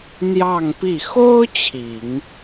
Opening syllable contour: falling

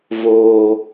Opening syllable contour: low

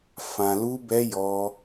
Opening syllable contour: low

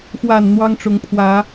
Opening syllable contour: low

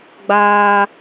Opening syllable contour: high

